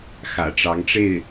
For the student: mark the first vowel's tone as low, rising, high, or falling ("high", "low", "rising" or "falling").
low